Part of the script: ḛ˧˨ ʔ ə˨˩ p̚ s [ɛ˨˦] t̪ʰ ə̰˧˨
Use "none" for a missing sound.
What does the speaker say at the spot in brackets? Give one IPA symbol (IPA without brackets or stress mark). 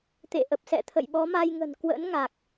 ɛ̰˧˨